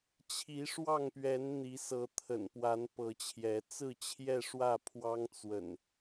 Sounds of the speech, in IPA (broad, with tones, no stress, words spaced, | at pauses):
t͡ɕʰi˨˦ʂwɑ˥˨ŋpɥɛ˨˦n n̪i˨˦ sɤ˨˦t̪ʰə̰˨˩npwa˨˦n pɤ˨˦t͡ɕʰjɛ˨˦ t͡sɹ̩˥˨ t͡ɕʰjɛ˥˨ʂwä˥˨pʰwɑ˦ŋ t͡swə̰˨˩n